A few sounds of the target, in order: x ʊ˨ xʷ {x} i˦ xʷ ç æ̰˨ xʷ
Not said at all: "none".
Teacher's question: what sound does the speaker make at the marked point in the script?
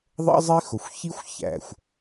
ç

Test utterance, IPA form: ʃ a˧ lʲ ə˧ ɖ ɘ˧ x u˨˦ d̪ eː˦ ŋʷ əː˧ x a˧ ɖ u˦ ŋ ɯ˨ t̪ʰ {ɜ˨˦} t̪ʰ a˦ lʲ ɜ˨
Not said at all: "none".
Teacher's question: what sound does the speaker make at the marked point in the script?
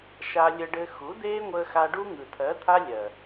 ɜ˨˦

